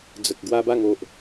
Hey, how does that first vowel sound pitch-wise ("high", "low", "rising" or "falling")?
low